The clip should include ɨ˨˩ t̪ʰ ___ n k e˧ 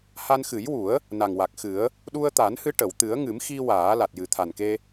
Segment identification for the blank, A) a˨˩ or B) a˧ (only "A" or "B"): A